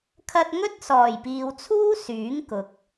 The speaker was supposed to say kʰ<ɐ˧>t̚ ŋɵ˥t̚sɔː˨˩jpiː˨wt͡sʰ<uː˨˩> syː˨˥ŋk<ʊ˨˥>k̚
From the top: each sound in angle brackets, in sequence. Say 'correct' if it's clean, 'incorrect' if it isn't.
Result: correct, incorrect: uː˥, correct

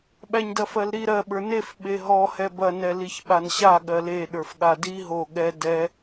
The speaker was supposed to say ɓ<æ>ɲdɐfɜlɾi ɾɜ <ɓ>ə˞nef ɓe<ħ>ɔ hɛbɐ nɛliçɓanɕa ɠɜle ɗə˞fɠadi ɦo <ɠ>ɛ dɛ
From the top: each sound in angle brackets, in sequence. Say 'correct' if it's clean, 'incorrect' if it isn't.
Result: correct, correct, incorrect: ɦ, correct

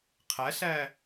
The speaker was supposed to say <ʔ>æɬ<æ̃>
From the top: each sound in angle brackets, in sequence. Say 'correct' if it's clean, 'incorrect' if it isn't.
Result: incorrect: qʰ, incorrect: æ

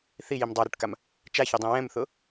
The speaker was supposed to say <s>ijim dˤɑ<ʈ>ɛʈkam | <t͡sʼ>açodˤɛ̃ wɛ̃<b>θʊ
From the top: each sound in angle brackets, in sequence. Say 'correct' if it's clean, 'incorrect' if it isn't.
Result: incorrect: θ, incorrect: ɾ, incorrect: t͡ʃ, incorrect: m

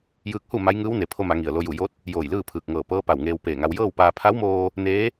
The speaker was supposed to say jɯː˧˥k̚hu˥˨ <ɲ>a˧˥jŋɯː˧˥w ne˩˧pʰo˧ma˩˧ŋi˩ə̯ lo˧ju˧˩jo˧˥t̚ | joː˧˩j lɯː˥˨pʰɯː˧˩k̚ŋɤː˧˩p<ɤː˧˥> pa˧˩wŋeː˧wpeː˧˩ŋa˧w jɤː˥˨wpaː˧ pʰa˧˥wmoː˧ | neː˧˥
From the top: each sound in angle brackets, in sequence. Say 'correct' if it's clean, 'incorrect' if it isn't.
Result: incorrect: m, correct

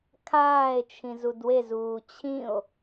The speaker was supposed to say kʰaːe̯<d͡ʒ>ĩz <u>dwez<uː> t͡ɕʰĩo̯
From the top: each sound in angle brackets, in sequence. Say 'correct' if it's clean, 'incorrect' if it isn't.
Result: incorrect: t͡ʃʰ, correct, correct

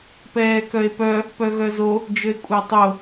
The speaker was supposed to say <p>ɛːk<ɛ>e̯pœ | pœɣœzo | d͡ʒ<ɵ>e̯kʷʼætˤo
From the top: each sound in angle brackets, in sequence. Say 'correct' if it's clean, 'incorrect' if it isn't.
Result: correct, incorrect: œ, correct

